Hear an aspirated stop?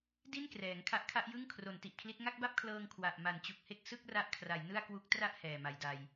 yes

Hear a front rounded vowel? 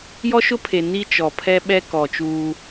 no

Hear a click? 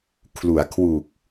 no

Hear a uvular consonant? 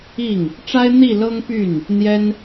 no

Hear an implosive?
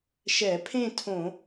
no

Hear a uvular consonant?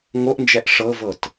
no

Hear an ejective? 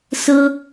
no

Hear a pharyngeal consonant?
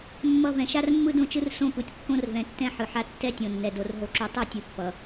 yes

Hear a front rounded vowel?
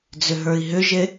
yes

